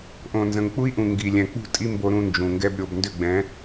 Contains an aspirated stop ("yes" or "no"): no